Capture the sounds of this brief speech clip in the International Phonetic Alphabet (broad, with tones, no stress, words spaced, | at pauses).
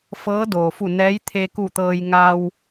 fɤː˧˥doː˩fu˧˩ nɛː˧˥j t̪ʰe˧ku˧˩t̪ɤː˧j ŋa˧w